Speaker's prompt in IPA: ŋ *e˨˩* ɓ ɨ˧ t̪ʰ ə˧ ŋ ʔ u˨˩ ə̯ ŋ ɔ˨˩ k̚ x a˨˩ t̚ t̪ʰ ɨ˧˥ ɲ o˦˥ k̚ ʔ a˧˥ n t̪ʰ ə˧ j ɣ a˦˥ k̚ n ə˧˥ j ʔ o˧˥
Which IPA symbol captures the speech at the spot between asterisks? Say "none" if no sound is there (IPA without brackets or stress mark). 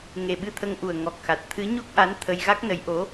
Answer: e˨˩